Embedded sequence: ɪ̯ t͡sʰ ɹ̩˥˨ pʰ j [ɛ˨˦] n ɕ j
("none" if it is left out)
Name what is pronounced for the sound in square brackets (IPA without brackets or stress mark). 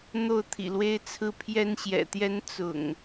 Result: ɛ˦